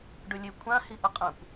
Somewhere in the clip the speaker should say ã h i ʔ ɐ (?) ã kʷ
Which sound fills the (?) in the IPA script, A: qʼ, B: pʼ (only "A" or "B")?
A